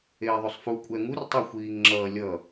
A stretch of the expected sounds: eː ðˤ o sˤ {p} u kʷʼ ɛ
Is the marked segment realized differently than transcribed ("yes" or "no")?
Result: yes